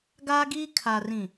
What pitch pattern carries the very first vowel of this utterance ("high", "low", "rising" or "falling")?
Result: high